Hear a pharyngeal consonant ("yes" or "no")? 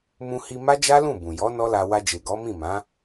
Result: no